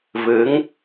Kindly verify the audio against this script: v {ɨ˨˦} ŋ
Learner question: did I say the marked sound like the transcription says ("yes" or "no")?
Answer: yes